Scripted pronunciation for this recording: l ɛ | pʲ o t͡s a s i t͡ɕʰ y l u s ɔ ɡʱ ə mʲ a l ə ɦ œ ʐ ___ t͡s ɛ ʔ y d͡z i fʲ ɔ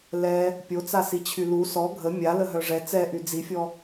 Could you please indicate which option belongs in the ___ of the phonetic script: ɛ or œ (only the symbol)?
ɛ